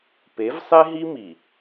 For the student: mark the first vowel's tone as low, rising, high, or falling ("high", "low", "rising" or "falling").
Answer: rising